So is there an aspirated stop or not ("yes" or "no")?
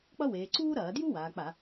no